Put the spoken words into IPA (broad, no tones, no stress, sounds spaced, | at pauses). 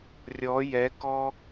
rʲ ɔ j ɛ k ɔ